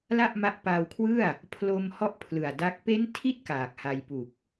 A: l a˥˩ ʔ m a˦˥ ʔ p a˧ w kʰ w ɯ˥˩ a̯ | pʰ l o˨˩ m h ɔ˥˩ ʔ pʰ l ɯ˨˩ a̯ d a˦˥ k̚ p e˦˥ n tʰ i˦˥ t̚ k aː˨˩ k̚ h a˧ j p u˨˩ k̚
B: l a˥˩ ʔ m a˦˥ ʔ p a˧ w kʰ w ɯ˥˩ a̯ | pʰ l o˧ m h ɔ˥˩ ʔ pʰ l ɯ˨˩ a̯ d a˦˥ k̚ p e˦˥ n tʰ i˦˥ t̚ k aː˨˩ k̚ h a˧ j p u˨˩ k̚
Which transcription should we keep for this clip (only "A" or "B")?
B